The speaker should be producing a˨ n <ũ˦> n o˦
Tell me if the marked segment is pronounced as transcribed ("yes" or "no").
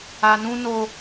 yes